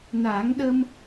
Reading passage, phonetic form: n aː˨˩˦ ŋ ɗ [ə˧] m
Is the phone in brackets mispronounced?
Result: no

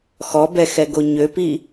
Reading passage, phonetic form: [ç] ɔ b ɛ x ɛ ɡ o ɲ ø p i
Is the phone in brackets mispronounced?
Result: yes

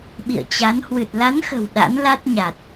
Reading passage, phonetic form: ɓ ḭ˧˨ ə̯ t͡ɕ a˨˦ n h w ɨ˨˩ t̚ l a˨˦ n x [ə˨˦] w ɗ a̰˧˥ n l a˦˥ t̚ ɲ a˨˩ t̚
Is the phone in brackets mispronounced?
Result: yes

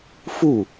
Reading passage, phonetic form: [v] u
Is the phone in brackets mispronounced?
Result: yes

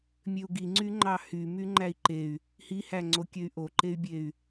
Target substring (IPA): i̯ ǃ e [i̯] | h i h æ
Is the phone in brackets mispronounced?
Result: yes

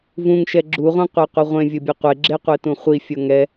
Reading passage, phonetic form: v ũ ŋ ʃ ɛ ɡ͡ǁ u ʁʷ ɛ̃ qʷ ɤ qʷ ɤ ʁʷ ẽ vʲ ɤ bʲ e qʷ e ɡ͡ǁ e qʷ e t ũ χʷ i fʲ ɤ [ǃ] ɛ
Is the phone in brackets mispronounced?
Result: yes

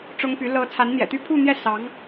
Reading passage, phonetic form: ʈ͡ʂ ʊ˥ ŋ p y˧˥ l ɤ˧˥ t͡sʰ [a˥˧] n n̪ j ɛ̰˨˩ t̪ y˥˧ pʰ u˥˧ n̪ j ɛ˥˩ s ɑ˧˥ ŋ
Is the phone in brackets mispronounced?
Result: yes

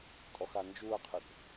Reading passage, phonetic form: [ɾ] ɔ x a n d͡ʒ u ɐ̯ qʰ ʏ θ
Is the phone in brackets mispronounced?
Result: yes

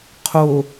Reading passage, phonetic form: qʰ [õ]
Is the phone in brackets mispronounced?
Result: yes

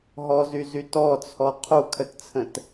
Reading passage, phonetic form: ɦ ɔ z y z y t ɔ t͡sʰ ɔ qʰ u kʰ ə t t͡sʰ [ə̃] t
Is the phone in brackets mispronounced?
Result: no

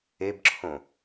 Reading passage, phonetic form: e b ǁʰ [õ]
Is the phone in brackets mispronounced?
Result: no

